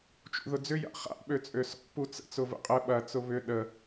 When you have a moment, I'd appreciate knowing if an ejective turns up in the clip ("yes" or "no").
yes